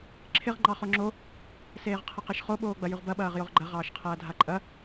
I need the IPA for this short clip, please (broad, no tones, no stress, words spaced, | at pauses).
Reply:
ǁʰɪʁ ŋ͡ǃɑχoŋ͡ǁo | seːʁqʰɐqeʃχo ɓoːɡ͡bɐjʉʁbɐ ɓɐːʁjoʁɡ͡ǃɐ ʁɑːʃqʰɐːdʱaǃʼɐ